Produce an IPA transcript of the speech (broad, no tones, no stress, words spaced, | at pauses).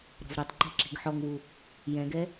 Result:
ɾɔ̤vɾɛtˤǃi̤ ǁi̤ɡħɔŋwu | jɛ̃ɡɛ